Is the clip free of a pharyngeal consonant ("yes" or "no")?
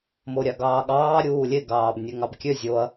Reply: yes